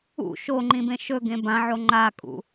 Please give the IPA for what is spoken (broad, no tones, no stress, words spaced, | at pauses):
ṵ ʃo ŋ͡ǃĩbẽʃɵɡẽ bãʕo ŋ͡ǃakʼṵ